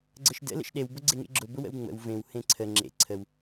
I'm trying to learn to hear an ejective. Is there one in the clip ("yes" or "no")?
no